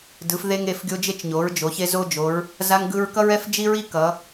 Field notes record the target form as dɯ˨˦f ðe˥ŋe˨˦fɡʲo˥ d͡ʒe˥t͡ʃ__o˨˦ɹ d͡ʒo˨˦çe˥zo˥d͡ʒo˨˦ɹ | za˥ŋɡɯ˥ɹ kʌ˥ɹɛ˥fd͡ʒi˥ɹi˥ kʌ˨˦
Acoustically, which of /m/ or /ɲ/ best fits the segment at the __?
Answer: ɲ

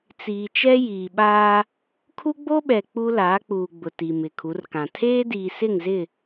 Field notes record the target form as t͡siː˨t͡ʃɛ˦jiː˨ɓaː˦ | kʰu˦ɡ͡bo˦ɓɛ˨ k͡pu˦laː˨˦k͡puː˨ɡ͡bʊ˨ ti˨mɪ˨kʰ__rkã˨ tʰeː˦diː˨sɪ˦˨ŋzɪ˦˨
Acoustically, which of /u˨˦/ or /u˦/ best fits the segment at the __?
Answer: u˨˦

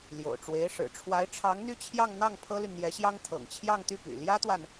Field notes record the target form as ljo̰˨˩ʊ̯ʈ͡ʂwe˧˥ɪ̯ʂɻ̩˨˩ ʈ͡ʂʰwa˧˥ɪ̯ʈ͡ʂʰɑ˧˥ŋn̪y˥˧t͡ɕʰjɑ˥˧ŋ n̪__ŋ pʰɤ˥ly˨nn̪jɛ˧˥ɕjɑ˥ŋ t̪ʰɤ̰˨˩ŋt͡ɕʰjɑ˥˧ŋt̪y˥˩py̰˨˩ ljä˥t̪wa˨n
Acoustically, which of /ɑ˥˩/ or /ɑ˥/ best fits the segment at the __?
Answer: ɑ˥˩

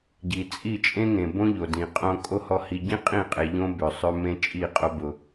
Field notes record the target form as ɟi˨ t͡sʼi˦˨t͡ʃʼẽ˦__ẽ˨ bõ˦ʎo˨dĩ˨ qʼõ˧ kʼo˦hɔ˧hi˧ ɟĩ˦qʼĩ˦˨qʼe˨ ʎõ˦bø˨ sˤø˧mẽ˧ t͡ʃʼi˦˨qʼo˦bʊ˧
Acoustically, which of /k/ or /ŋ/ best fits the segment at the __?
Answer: ŋ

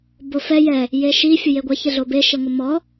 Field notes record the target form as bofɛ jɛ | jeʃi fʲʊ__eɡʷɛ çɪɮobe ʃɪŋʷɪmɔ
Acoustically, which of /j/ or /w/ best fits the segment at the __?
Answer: j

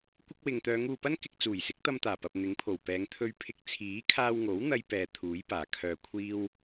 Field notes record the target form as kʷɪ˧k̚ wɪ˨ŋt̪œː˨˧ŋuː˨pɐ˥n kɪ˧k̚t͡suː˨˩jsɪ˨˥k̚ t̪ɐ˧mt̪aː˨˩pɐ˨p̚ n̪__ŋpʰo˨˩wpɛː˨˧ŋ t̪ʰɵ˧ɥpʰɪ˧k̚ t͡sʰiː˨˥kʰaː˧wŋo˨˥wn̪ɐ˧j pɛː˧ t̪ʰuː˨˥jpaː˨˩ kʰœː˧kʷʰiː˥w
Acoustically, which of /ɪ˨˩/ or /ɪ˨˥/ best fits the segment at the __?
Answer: ɪ˨˥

